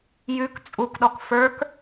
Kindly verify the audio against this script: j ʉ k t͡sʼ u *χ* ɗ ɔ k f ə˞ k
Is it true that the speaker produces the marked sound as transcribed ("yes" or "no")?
no